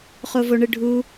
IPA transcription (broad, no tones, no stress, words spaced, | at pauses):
χovoɳɯɖʱu